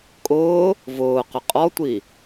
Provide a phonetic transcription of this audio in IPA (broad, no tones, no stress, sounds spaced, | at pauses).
kʼ ʊː | v ʊː q ʏ qʼ ɔ tʷ i